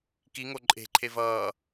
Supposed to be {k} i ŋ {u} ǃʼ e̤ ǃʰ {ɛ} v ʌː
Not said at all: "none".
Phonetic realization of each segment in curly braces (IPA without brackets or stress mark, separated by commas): k, o, e